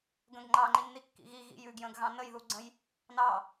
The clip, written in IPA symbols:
ɡə̃ɡŋ͡ǃɑ ŋ͡ǃinːikːḭɣi ɣḭjʉɡjə̃ːɡ ɣɑ̃nəjðuɡ͡ǀə̃j | nɑ

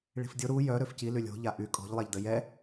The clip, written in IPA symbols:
ɭi̤fdʲo ɾu jœ ɾøfci lylʲo̤ ʎaʔy kʼɔ̤ʎ lˠaʎdəjɛ

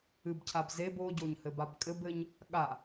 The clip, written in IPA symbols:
ɨbcʰab zeb oɟoɲhɘbab kʼɘbɘɲ | ɠa

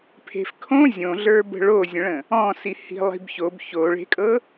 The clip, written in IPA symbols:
pʰe̤fkʰõ zʲõɮə˞bə̤ ɭozʲə̃ɭə̃ | ɔ̃si hi̤lˠi̤bçob çoɭe̤kʼɤ

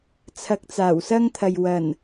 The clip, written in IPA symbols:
t͡sʰɐ˧k̚t͡saː˨˩wsɐ˥ŋt̪ʰɐ˨j wɐ˨˩n

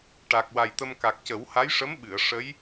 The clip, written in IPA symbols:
ʈa˨˩k̚wa˨˩jt̪ə˧m ka˨˩k̚cə˨˩˦w ha˧˥jʂə˧˥m ɓɨ˨˩˨ə̯ ʂə˧˥j

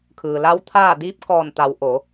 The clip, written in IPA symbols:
kʰɯː˩la˧˥wt̪ʰaː˥˨ diː˧˥p̚kɔː˧˩nt̪a˩˧w ʔo˩˧

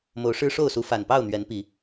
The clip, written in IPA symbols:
mo˨˦ʊ̯ʂɻ̩˦ʂo˥˨ʊ̯su˨˦ fa˨˩npɑ˥˨ʊ̯n̪ɥɛ˨˦n pi˨˦

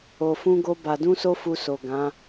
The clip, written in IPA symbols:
o˧fũ˦ɡo˦ba˧ dũ˦so˦fu˧so˨ ɡã˨˦

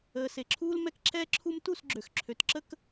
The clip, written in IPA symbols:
əː˨se˨ǁʰuː˦l mɛ˦kǁʰɛː˦ǁʰu˦m tu˦˨sɡ͡ǁø˨x ǁʰø˨tǁə˦k

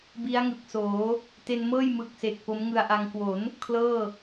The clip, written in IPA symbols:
bi˦˥a̯ŋɯ˨˩k̚soː˩˦ | te˧nmɤː˥˩j mɯ˨˩k̚se˨˩k̚ po˦˥mŋɯ˧a̯ʔa˧ŋ kwo˩˦n | kʰlɤː˥˩

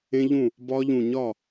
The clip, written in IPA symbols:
ẽ˦˥ʎũ˥˩ | bɒ˦˥ʎũ˧˩ ɲɒ˥˩

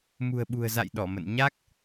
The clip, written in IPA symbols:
mṳ˨˩ə̯ɓṳ˨˩ə̯za̰˧˨j ɗɔ˧˩mə̰˧˨n ɲa˦˥k̚

